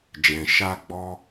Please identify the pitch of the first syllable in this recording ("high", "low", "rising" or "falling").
low